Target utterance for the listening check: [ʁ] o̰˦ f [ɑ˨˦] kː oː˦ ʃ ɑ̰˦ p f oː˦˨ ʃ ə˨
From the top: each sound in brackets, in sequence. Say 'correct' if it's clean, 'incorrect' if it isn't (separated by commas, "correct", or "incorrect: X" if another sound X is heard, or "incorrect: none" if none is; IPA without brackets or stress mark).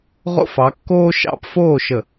correct, correct